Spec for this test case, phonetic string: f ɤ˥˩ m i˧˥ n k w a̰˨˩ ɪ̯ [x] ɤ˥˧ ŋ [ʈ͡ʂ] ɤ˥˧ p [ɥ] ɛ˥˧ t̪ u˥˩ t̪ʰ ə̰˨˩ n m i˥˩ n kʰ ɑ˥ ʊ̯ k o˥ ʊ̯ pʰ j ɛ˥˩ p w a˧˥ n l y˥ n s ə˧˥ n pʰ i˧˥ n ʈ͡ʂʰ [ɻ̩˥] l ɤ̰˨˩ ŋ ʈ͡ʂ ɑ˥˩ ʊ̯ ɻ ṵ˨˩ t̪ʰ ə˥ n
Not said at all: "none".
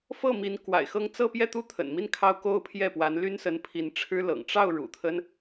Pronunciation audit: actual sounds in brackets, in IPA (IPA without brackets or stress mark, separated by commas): x, t͡s, j, ɻ̩˥